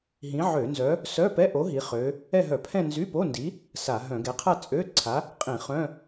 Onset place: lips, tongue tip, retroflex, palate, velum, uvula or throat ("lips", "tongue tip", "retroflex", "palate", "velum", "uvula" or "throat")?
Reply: throat